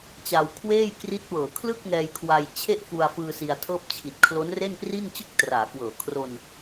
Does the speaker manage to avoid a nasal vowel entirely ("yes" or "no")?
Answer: yes